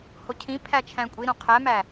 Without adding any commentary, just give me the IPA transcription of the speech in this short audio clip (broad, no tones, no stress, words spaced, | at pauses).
hocʰĩpʰæ t͡ʃʰæ̃kʷʼiɾõ qʰæmæ